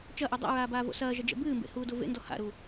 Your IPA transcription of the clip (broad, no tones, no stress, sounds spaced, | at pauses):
t͡ʃ ɐ ʔ u dˤ ɛ̰ ɹ aː b aː v o̰ s ɐː ʒ ɐ d͡ʒ ɛ̰ b ɨː m b ḛ h uː d o v ḛ n d ɔ h a̰ ɾ u